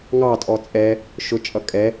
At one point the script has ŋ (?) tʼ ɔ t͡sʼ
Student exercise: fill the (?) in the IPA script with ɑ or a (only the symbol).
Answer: ɑ